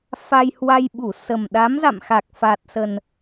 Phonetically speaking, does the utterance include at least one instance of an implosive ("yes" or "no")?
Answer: yes